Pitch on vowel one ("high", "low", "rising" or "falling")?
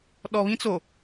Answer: low